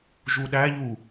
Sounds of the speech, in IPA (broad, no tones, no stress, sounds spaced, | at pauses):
ʒ u ɗ æ ʎ u